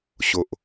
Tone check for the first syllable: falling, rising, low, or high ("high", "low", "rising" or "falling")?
low